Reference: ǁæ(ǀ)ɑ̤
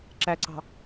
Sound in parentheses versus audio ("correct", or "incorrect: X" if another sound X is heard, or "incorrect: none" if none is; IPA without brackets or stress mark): correct